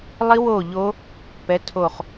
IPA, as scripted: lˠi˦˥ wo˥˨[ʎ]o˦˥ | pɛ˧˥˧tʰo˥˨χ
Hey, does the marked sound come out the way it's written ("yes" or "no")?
yes